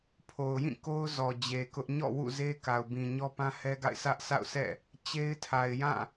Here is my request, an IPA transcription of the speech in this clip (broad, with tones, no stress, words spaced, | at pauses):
pʰo˨ʊ̯jĩ˦˨ko˦ʊ̯ zɔ˨d͡ʑe˨ kʊ˦ʔ ɲɔ̰˦˨wṵ˦˨ze˦ ka˨ʊ̯bĩ˨ ɲɔ˦pã˦hɛ˦ɡa̰˦˨ɪ̯ sʰä˦ʔ sʰa̰˦˨ʊ̯sɛ̰˦˨ | t͡ɕe˦ɪ̯tʰa˨ɪ̯ jã˦˨